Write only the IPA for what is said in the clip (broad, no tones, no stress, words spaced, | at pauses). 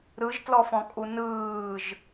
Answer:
ɾɯʒtlɔfɔ̃kʼu nɯːʒ